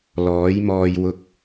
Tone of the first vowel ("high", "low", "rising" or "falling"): rising